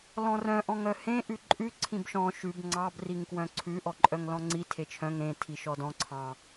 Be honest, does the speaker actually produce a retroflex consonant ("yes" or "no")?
no